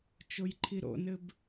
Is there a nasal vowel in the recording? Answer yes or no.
no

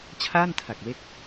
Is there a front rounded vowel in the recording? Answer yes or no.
no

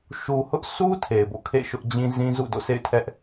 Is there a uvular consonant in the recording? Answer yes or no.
no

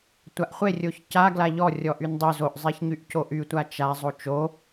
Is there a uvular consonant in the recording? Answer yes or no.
yes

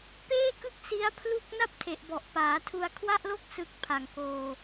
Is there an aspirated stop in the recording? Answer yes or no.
yes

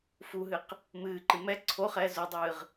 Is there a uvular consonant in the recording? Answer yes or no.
yes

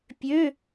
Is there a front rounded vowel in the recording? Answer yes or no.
yes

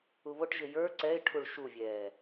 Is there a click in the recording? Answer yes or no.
yes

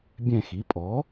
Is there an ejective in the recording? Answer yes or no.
yes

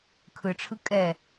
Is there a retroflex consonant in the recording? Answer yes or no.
yes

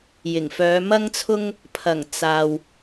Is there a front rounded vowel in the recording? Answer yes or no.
yes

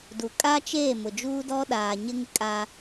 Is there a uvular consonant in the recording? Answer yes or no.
no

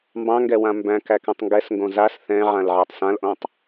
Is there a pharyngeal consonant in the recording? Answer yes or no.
yes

